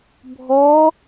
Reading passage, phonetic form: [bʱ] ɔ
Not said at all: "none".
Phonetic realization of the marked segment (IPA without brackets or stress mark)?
bʱ